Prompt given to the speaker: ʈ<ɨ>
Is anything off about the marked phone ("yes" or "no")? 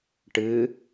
no